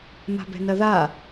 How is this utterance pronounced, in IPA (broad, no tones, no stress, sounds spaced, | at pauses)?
m a̤ b ɛ̤ n ɐ ð a